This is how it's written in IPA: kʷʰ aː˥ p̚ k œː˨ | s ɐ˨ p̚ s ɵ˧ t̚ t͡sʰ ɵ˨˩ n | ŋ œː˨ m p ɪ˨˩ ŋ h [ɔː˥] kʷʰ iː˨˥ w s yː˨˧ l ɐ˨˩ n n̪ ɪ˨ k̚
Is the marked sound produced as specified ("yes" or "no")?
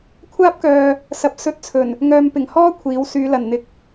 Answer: yes